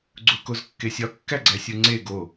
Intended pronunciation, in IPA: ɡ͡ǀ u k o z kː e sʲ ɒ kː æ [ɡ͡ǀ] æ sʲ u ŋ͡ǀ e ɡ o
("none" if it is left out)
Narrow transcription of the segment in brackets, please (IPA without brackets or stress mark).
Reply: ɡ͡ǀ